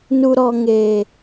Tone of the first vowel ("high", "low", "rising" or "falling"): low